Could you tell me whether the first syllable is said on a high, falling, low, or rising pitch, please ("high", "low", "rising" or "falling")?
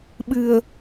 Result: low